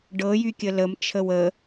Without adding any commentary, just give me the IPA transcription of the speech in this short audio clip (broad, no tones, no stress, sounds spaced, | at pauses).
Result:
ɖ ɤ j y kʲ ə l ə m t͡ʃʰ ə w ə